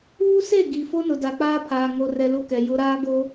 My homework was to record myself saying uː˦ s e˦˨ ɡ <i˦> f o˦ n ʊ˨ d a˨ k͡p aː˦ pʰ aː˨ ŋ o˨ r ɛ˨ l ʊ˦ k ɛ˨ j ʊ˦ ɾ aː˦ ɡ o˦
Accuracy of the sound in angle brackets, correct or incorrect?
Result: incorrect